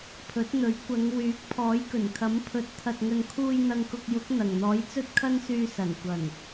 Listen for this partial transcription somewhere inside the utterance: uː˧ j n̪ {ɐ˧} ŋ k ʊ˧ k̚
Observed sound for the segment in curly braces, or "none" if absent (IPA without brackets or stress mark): ɐ˧